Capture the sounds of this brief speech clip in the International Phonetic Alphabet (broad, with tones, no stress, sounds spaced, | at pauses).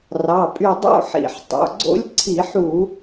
r ɑ˩˧˩ pʼ y˧˩ dˤ o̰˥˧ ħ ḭ˧˩˧ ħ tˤ o̰˩˧˩ ɡ͡ǀ o̰˦˥ lʲ ǀʰ i˧˩˧ ħ u˧˩˧